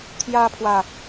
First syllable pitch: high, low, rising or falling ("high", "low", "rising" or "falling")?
high